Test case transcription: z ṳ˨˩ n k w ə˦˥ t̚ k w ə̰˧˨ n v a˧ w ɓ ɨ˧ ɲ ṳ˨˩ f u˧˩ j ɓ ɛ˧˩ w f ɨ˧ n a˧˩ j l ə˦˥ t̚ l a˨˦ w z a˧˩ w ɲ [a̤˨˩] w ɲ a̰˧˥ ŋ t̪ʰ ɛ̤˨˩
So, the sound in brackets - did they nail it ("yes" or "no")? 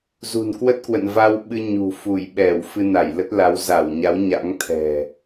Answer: no